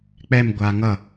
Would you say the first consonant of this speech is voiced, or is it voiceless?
voiceless